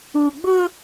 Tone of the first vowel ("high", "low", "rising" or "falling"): low